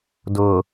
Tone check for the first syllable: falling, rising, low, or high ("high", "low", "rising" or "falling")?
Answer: low